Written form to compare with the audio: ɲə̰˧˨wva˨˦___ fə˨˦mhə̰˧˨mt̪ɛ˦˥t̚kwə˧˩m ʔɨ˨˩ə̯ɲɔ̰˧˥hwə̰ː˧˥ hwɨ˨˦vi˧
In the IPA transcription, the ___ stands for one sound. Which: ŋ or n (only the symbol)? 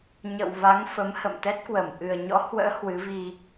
ŋ